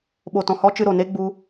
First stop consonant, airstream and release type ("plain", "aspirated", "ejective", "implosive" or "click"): implosive